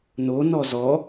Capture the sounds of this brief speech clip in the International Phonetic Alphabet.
n o n ɔ z ɔ

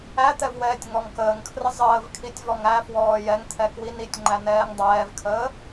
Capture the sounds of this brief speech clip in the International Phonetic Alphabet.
æ t̪ ɛ v w ɛː tʲ ŋ ɔ ŋ k əː ŋ kʰ r ə zˤ əː v kʰ i tʲ v ɔ ŋ æ f w ɔː j ɛ ŋ t̪ʰ ɛ k w i n i tʲ ŋ͡ǃ æ n ɛː ŋ dˤ ɛː v kʰ əː

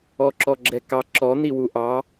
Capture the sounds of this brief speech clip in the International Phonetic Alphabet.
ɔ ǁ ɔ ɡ͡ǁ ɛ k ɑ ǁ ɔ n̪ i w u ʔ ɑ

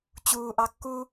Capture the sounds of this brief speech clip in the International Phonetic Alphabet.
t͡ɕ uː ʔ ɑ kː u

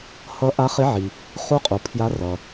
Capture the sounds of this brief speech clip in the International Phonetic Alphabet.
h ʌ˧˥ ʔ a˧˥ χ e˧˥ ʕ i˩ | χ u˧˥ qʼ u˩ pʰ j a˧˥ r ʌ˩

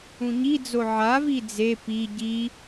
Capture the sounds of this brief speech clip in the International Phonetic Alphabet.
ũ ɲ i d͡z o ʕ a v i d͡z e p i ɟ i

